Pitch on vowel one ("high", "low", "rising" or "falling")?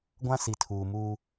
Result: high